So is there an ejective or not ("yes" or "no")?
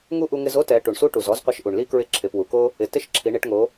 no